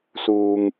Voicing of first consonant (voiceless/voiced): voiceless